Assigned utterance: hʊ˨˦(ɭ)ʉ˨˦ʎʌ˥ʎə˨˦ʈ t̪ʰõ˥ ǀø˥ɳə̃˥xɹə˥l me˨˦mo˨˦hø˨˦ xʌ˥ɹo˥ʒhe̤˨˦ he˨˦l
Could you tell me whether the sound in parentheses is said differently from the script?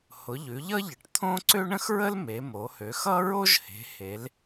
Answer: yes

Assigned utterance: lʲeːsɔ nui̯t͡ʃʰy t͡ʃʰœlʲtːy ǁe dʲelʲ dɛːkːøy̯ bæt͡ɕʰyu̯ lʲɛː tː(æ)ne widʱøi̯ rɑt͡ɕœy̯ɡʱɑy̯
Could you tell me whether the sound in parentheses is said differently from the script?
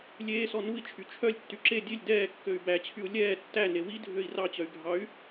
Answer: no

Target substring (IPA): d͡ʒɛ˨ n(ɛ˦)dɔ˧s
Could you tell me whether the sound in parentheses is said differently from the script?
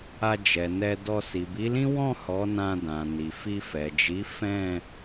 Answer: yes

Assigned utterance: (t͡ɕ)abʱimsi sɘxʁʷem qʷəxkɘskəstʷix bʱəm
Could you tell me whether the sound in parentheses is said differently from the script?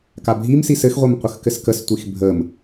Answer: yes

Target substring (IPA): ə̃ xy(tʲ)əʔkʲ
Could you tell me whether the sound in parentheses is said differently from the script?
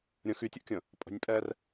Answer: no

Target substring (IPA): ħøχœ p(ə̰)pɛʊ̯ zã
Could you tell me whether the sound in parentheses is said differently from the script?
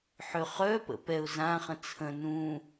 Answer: no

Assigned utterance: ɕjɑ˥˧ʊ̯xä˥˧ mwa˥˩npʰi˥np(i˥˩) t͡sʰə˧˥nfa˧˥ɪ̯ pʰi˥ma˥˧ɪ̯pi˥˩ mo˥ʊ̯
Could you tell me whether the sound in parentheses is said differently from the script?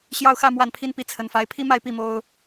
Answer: no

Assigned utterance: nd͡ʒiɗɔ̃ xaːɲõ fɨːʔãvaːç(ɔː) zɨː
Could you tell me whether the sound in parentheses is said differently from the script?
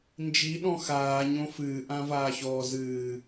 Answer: no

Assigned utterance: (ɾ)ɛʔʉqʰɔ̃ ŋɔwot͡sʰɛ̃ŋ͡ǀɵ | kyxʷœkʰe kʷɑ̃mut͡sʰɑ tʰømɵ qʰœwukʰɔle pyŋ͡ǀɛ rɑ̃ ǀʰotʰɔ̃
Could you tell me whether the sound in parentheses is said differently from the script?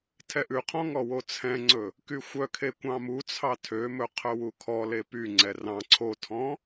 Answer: yes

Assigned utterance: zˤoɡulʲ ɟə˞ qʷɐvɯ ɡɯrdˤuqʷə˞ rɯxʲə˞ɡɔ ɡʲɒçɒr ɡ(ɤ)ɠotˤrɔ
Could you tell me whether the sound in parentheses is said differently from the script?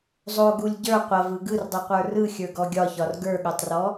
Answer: yes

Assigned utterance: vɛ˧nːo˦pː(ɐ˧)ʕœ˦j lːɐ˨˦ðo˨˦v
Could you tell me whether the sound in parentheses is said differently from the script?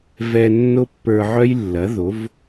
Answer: yes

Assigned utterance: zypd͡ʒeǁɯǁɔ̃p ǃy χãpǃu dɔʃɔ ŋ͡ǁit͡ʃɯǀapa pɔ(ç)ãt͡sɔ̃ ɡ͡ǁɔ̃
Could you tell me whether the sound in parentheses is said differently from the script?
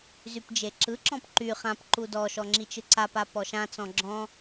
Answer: yes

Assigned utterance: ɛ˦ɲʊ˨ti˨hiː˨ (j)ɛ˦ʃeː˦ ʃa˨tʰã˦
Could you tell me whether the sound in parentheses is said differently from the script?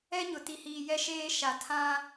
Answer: no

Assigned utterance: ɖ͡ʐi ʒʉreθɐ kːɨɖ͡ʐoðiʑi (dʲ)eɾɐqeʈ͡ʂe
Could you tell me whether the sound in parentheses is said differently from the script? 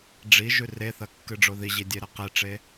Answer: no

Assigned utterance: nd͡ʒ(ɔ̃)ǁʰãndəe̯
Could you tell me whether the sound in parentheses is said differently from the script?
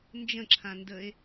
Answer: yes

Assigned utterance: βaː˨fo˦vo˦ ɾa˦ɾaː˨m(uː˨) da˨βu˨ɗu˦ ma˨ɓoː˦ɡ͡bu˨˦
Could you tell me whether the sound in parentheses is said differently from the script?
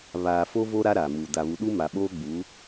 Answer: no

